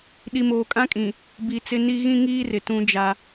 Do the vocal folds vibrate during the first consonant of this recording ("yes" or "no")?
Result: yes